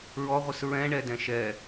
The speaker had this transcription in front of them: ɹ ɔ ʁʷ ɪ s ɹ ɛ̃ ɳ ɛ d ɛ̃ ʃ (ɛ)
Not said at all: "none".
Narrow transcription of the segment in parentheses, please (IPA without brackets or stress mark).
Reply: ɛ